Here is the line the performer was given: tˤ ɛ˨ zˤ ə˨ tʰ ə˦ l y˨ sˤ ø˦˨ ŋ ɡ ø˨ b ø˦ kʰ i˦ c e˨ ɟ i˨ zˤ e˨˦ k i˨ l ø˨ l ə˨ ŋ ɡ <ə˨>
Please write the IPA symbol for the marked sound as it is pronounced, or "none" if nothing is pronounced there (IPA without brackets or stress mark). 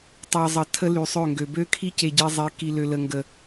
ə˨